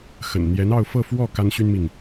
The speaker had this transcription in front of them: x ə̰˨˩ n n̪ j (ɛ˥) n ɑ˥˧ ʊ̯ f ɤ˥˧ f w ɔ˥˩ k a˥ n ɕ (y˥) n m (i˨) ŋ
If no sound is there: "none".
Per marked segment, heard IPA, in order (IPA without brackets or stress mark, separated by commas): ɛ˧˥, y˥, i˨